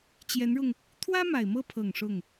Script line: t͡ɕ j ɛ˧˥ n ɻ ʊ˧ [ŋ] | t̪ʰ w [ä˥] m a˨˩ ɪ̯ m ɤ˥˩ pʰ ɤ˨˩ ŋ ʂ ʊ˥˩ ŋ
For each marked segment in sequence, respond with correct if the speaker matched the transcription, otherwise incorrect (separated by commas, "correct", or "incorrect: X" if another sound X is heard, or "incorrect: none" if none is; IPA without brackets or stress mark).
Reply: correct, correct